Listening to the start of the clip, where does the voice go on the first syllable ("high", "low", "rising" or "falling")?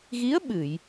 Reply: rising